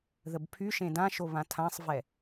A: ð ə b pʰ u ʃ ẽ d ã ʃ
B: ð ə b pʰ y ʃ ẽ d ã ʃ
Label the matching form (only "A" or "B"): B